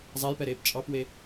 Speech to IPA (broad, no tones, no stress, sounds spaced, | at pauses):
zˤ æ j p ɛ ɾ eː p t͡ʃʼ ɑ p w e